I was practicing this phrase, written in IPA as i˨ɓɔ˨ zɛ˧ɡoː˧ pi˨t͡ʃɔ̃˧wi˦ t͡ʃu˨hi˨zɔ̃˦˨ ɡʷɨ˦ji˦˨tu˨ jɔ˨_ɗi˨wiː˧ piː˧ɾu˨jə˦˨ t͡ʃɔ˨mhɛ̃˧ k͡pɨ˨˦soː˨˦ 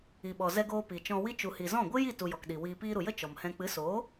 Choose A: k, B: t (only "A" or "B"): A